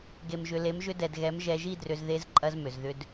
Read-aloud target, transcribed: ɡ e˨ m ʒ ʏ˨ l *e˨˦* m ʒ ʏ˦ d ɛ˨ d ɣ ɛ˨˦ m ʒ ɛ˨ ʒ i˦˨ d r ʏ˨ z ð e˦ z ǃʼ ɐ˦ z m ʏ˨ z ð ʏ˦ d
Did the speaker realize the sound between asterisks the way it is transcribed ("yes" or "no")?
yes